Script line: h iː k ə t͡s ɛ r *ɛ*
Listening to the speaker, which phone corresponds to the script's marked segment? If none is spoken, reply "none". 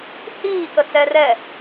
ɛ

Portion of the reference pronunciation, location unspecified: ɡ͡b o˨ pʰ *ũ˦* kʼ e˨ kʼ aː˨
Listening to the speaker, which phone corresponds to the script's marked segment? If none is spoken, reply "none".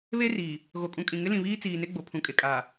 ũ˨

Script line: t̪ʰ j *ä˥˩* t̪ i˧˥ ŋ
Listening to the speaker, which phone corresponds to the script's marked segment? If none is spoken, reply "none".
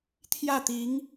ä˥˩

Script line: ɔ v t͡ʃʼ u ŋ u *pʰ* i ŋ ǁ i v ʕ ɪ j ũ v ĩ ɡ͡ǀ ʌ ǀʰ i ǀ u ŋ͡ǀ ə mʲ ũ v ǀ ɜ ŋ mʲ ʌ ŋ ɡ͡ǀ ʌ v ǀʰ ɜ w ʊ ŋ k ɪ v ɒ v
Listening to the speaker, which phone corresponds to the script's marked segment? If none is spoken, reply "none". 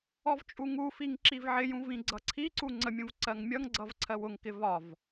f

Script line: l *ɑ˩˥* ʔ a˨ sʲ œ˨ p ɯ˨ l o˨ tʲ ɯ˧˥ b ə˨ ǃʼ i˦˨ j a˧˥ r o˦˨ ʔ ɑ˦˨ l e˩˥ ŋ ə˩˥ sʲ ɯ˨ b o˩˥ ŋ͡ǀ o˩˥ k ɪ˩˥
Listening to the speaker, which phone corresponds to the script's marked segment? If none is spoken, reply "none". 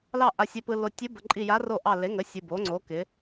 ɑ˦˨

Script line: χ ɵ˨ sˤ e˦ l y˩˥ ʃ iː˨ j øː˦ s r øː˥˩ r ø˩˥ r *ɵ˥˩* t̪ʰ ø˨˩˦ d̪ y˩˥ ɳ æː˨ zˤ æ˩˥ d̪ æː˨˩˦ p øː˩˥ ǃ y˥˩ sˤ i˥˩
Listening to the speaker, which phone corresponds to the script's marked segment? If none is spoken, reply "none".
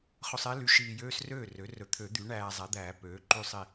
ɵ˩˥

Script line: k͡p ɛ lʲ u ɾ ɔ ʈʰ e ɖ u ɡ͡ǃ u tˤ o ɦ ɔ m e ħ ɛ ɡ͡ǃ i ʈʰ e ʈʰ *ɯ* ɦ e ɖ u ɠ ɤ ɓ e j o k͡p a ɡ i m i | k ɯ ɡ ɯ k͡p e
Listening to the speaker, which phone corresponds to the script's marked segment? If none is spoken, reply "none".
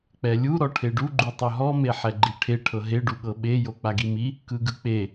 ɤ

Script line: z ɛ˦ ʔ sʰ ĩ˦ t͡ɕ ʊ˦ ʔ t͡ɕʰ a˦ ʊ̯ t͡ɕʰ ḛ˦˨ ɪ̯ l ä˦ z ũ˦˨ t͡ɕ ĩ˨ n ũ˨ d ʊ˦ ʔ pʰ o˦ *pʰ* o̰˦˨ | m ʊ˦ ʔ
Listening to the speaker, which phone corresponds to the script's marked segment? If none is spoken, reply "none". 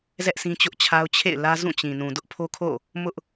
kʰ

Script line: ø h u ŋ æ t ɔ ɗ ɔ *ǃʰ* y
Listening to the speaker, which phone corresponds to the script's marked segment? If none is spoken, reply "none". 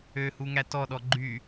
ɡ͡ǃ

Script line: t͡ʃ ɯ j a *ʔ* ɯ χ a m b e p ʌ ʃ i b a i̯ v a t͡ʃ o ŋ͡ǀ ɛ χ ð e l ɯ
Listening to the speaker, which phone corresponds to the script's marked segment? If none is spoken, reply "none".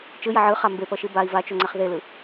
ʕ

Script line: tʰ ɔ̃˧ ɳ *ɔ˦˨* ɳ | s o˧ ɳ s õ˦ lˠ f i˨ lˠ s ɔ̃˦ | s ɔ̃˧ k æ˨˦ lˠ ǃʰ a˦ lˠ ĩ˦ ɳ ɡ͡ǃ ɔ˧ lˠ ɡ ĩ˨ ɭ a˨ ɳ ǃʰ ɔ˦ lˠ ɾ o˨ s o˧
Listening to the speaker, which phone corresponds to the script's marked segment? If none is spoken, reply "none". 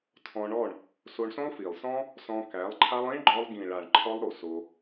ɔ˦˨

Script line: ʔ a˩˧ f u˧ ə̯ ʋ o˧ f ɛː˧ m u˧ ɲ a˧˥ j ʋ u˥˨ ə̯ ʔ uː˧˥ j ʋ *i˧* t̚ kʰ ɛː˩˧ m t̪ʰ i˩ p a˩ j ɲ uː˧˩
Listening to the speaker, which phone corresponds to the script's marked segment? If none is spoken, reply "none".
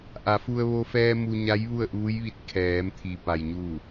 i˧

